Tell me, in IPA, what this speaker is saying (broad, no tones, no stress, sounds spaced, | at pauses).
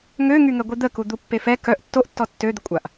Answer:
ŋ ø ŋ y ŋ ɛ ɡʷ i d̪ ə k u d̪ u pː e f ɛ k œ ʔ tː o ʔ tː ɔ tː ø d̪ ə kʷʼ a ʔ